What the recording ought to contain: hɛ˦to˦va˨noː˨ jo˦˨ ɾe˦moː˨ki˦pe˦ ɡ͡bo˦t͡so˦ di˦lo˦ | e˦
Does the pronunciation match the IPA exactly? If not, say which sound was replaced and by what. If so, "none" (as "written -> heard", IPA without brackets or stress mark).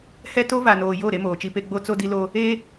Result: k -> t͡ʃ